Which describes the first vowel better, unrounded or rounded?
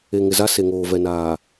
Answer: unrounded